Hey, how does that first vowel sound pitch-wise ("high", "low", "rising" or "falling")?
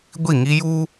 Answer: falling